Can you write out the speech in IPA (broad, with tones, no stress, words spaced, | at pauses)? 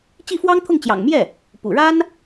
t͡ɕi˥˩fwɑ˥ŋt̪ʰʊ˥˩ŋ t͡ɕjɑ̰˨˩ŋmjɛ˥˩ | pṵ˨˩ɻa˥n